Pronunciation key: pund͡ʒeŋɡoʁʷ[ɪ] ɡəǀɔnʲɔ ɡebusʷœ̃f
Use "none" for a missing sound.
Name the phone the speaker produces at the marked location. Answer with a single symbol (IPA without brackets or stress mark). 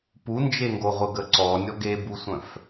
ə